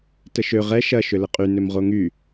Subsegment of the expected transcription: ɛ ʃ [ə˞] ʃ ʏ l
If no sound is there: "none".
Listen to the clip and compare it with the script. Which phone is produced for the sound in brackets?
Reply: ɐ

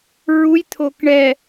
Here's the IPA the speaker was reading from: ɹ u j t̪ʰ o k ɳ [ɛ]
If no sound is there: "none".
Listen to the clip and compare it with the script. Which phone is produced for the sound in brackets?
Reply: ɛ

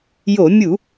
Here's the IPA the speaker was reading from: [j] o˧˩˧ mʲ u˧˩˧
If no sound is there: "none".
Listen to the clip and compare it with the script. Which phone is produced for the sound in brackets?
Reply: j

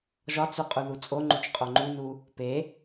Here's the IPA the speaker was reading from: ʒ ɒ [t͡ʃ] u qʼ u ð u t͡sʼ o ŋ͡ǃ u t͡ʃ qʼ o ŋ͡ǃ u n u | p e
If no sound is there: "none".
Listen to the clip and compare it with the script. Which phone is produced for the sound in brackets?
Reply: t͡s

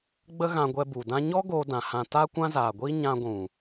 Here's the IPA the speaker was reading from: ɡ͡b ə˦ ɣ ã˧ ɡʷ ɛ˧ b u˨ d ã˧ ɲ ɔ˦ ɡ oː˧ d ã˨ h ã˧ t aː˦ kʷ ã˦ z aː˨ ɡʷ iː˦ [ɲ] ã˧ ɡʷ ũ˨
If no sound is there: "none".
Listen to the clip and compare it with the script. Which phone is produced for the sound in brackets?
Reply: ɲ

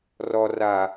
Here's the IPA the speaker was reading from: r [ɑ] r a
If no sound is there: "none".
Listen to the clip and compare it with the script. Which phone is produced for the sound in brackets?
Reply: ɔ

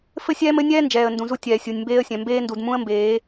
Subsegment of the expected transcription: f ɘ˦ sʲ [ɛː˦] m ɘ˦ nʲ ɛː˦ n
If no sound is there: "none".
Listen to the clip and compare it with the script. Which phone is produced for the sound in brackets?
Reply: ɛː˦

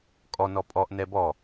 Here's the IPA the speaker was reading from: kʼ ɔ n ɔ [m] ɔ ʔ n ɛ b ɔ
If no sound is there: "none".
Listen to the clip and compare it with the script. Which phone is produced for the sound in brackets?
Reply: pʼ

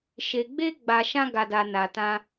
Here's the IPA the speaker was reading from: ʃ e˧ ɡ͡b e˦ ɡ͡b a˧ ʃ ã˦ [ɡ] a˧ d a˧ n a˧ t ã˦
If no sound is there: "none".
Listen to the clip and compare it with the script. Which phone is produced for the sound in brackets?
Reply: ɡ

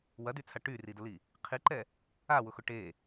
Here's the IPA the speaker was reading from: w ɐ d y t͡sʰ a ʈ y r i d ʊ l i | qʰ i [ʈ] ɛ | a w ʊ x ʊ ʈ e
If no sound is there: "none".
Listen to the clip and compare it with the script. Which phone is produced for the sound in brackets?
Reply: ǃ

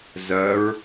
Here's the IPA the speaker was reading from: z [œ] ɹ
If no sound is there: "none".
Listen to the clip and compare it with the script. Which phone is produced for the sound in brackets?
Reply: œ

